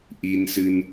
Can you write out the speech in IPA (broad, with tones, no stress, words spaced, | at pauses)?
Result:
ʔi˧nsɨ˧n